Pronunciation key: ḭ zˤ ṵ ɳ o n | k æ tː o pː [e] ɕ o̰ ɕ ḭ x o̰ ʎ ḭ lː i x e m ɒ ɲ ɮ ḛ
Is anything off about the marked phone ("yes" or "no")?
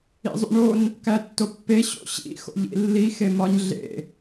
no